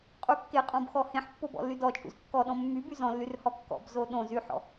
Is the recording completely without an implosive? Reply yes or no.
no